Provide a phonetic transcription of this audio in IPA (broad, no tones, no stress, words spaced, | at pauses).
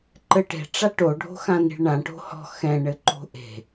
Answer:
ǃɘʈe̤ ʈ͡ʂaʈo ɖʱo̤xãni̤ɭɳã ʈo̤hɔ̤ xɛ̃ ɳɘǃo̤ʔe̤